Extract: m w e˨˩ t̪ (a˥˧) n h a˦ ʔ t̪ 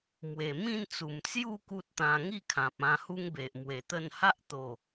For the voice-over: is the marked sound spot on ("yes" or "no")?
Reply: no